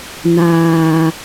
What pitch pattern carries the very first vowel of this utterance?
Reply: low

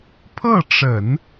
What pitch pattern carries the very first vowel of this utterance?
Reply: falling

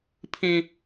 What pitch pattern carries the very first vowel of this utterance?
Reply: high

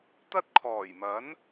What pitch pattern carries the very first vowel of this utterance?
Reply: high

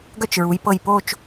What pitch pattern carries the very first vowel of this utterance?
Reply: falling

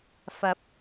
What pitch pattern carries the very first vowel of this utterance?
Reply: rising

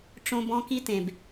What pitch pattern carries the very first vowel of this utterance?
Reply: high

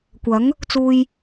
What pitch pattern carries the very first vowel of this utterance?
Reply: rising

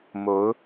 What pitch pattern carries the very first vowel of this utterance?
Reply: rising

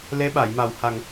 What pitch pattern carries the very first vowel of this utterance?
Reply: rising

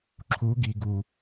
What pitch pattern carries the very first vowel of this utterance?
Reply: rising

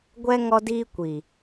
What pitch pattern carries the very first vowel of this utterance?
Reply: high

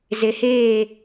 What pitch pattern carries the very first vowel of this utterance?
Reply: low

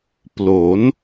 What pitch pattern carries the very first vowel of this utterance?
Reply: rising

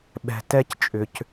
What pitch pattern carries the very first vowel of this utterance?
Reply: low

